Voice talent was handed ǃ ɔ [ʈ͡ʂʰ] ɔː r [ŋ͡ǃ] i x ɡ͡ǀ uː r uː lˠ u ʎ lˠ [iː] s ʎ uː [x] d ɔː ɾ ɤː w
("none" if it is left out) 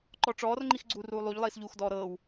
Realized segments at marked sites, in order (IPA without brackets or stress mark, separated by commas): ʈ͡ʂ, ŋ͡ǃ, iː, x